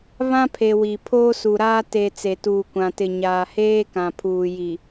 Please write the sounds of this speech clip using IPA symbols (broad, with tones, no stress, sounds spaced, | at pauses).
β ã˦ pʰ e˨ w i˨ pʰ oː˦ s u˨ ɾ aː˦ t e˨ t͡s e˨ t uː˨ kʷ ã˨ t ɪ˨ ɲ aː˨ h eː˦ k ã˨ pʰ uː˨ j i˨